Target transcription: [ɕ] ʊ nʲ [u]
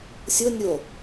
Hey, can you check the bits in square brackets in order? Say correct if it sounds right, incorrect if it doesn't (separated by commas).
incorrect, incorrect